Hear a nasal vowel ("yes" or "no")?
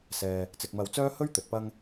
no